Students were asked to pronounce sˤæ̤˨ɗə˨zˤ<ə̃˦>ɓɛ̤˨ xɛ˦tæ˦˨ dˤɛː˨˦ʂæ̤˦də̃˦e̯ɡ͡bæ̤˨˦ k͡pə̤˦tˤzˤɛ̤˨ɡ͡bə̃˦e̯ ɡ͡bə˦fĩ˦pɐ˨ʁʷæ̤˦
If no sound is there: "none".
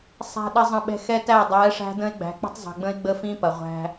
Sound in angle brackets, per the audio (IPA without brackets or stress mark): ə̃˨